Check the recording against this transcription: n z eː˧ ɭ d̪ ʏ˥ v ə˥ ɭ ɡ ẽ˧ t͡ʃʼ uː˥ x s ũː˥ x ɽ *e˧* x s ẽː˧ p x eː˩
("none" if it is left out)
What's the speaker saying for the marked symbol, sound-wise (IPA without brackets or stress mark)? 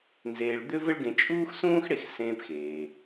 e˧